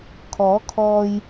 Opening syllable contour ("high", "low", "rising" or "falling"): rising